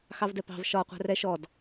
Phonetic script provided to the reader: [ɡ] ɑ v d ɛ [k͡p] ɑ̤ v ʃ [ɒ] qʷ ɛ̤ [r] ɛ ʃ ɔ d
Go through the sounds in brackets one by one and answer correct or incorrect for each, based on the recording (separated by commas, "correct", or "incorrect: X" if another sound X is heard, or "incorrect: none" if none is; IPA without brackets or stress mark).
incorrect: x, incorrect: p, correct, correct